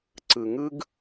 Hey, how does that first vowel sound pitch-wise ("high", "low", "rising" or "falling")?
low